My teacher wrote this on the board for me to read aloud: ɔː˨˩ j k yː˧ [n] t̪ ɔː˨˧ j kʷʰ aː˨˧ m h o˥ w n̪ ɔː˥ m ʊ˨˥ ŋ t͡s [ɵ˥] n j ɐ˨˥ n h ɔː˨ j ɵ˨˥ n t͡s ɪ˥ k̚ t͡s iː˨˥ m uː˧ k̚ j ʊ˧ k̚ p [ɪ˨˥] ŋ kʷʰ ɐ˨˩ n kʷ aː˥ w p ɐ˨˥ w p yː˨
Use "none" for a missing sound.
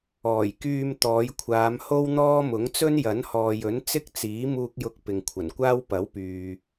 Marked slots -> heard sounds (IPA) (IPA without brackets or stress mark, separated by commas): m, ɵ˥, ɪ˨